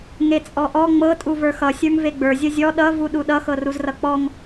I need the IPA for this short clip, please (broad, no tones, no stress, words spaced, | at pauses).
ŋet͡sʼɔʔɔ ŋ͡mɤ tʼuvə˞xʌ sʲə˞ŋveɡ͡bə˞ zʲʌzʲɔ ɗʌ vuɗuɗʌ xɤruzrʌk͡pɔŋ